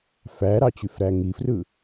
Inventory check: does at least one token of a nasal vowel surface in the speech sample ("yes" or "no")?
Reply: no